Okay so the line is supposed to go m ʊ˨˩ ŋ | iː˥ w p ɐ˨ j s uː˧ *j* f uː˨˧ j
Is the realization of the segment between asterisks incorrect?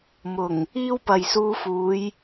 yes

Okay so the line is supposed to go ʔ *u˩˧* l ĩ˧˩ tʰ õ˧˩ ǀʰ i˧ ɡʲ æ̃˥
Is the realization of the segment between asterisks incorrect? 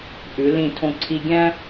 yes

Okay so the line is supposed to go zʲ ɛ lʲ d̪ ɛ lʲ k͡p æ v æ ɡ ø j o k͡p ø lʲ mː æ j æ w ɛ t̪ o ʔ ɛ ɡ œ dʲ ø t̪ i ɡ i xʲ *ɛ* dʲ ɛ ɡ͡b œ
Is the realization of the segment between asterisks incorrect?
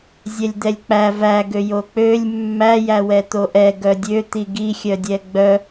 yes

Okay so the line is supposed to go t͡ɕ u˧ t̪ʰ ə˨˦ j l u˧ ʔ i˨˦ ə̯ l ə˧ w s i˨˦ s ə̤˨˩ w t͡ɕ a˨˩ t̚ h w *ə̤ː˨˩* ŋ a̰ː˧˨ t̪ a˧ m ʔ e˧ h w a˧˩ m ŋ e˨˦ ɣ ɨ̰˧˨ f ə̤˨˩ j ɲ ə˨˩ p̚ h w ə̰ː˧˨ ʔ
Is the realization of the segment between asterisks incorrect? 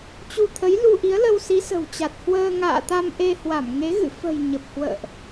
yes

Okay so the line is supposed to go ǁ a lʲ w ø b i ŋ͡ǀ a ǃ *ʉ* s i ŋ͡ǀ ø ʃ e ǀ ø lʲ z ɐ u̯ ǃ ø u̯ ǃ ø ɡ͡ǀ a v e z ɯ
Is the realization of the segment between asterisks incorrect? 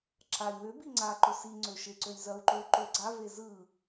yes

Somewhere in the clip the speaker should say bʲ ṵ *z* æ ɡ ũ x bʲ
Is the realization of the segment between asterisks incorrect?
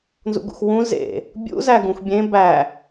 no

